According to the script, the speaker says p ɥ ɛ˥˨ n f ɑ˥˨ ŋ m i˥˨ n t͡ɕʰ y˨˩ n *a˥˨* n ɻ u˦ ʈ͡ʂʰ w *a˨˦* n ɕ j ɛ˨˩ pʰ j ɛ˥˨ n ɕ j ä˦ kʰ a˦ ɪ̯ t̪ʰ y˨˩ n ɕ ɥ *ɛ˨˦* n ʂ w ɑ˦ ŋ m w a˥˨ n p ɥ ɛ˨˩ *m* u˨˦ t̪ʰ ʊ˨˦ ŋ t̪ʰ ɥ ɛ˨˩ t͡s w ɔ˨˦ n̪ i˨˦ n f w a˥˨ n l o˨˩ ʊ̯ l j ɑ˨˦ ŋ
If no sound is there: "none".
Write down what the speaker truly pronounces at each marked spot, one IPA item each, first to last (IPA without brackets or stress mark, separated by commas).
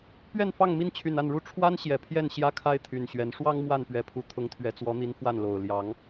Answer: a˥˨, a˦, ɛ˨˦, pʰ